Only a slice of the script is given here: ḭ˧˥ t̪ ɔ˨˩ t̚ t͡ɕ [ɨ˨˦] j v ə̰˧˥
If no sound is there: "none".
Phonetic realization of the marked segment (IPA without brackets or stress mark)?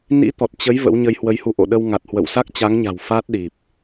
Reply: ə˨˦